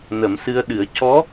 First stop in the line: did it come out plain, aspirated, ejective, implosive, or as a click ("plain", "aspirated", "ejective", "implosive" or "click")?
implosive